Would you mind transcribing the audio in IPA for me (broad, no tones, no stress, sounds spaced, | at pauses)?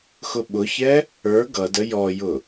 x ʊ ɓ ʊ ç ɛ | ə˞ ɡ ʌ d ə j ɔ j ʊ